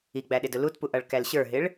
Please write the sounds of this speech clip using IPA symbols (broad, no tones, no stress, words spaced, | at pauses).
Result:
iɡ͡bæɗɪdʊ lutpuʔʌɭkæl ɕə˞ɦɪɭ